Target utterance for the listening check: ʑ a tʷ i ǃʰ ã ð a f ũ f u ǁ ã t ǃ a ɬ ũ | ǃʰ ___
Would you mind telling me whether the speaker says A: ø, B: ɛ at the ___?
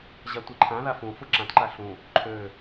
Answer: A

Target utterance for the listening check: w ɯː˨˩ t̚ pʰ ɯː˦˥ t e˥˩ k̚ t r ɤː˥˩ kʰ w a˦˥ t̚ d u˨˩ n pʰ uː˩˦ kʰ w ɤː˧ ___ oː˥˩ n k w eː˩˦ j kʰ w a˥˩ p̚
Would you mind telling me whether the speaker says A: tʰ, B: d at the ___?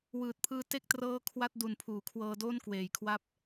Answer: B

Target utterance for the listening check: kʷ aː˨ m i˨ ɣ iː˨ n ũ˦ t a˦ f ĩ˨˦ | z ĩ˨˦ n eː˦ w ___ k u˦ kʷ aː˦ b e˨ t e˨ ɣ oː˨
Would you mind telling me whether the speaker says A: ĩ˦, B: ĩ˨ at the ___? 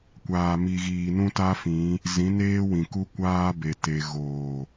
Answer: B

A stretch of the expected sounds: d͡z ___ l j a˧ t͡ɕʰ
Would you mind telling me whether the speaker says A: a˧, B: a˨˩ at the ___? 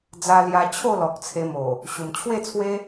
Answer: A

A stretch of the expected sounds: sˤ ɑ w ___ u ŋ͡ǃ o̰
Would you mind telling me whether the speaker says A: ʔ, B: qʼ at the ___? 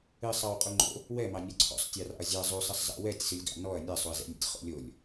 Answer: B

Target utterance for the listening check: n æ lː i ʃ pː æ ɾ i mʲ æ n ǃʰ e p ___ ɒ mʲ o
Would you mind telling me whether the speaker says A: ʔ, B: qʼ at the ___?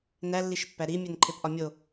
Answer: A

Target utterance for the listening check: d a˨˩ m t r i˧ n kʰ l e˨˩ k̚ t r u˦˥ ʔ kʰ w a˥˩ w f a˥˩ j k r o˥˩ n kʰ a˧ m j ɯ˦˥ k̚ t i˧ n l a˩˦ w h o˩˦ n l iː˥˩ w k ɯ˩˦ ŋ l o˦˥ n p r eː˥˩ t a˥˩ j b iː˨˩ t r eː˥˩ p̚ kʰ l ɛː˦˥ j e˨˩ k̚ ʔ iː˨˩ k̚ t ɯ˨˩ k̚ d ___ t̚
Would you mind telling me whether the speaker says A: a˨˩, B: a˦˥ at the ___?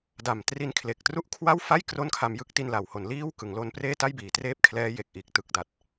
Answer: A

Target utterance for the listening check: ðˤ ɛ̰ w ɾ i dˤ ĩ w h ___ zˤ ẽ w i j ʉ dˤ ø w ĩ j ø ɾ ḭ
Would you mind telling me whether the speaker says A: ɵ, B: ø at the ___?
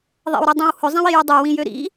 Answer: A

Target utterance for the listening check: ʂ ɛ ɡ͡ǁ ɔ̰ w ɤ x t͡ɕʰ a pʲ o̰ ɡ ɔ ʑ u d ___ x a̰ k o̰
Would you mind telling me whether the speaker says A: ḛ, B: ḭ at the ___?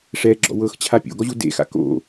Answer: A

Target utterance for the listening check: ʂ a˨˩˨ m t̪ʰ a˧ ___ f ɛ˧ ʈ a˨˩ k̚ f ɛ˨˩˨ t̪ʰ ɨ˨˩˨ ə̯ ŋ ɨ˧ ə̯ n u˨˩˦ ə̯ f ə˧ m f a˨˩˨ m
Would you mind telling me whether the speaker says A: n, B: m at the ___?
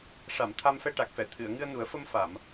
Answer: B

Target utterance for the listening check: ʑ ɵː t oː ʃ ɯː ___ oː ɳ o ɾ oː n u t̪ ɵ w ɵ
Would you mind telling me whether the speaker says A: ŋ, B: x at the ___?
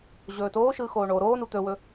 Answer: B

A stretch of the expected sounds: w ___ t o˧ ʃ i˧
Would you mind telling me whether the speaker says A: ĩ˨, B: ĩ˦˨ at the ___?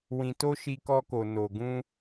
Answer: A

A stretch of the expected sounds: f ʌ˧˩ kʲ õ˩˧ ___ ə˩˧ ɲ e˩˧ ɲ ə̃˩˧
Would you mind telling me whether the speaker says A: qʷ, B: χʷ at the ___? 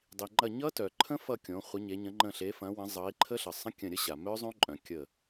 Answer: B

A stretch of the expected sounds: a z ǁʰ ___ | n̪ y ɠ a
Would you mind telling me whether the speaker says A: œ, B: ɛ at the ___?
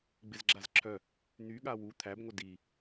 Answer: A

